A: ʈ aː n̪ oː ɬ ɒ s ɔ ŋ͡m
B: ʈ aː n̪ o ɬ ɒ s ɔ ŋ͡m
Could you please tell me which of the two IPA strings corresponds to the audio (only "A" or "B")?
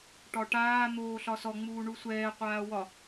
A